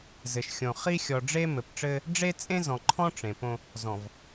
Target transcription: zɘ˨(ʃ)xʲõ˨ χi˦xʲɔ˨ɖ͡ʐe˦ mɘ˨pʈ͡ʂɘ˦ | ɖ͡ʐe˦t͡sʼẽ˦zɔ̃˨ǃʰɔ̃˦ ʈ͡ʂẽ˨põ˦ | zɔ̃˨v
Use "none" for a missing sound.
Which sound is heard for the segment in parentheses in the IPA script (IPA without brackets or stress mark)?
ʃ